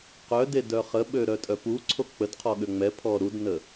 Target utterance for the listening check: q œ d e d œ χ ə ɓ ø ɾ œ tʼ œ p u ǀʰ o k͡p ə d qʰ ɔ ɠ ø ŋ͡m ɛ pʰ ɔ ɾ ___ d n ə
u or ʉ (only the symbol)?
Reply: u